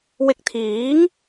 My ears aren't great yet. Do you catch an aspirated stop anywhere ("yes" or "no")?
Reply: yes